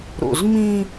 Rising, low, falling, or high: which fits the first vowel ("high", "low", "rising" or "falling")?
low